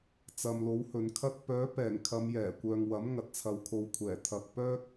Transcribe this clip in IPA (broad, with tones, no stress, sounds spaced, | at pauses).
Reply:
t͡s ɐ˨ m l o˨˥ w h ɵ˨ n kʰ ɐ˥ t̚ p œː˨˥ p ɛː˨˩ ŋ kʰ ɐ˨˧ m j ɛː˨˩ kʷ œː˨ ŋ w ɐ˨˥ m ŋ ɐ˨ t̚ t͡sʰ ɐ˨˧ w kʰ o˨˧ w kʷʰ ɛː˨˩ t̪ʰ ɐ˧ k̚ p œː˥ k̚